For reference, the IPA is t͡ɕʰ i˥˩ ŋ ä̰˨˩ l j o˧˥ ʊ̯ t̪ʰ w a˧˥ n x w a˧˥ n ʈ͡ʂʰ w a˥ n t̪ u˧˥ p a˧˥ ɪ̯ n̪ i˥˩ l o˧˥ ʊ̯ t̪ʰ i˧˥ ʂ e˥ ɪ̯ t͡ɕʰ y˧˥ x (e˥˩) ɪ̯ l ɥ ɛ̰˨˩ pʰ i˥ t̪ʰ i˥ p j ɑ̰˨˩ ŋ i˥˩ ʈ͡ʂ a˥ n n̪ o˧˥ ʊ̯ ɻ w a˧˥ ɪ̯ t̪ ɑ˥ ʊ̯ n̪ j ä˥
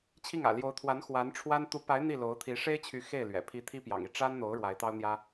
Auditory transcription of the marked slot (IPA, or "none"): e˥˩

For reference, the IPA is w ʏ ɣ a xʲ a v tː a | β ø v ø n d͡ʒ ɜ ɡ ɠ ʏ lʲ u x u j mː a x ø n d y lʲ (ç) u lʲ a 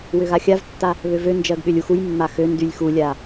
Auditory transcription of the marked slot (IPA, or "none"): x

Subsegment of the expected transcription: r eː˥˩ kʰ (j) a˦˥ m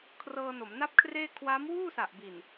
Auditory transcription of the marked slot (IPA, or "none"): w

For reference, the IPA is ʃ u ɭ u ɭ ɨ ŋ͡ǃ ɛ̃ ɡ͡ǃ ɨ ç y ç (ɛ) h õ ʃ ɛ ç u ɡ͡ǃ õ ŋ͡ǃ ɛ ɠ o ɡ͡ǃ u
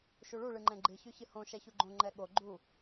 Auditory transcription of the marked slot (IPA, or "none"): ɨ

